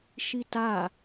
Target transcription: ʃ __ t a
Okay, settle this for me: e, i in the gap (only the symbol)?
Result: i